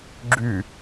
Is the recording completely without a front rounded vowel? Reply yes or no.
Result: no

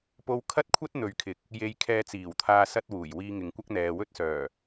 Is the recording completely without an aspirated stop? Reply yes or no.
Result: no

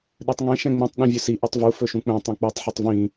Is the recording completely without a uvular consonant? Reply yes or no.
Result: yes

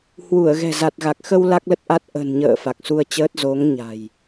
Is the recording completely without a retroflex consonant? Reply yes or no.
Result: yes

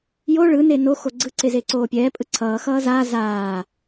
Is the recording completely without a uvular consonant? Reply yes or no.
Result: yes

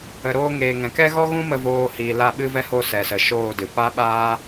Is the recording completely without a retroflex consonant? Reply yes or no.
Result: yes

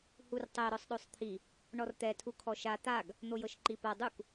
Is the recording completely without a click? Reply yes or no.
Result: no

